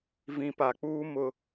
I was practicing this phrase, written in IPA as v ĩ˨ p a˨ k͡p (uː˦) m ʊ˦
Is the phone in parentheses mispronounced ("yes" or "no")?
no